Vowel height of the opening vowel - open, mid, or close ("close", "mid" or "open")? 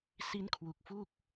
close